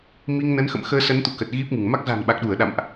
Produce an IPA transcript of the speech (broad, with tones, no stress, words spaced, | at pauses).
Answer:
mi˧ŋnə˨˦nxə̰˧˨m xəː˧sə˨˦nt̪ṵ˧˨ kə˨˩t̚ɣi˦˥p̚ŋɨ˧˩ŋ ma˦˥k̚ za̤˨˩n ɓa˨˩k̚ɗu˧˩ə̯ ɗa̰˧˨mʔ